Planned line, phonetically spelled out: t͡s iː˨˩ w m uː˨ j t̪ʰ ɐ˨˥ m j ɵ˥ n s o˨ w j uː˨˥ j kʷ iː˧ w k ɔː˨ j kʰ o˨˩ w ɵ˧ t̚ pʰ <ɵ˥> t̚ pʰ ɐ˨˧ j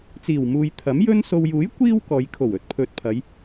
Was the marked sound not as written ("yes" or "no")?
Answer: yes